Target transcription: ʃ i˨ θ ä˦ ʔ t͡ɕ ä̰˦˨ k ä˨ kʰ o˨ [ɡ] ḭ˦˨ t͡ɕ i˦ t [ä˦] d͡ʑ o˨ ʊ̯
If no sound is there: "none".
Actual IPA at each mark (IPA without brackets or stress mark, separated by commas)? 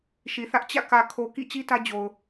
k, ä˦